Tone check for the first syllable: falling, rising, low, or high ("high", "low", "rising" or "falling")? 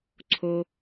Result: low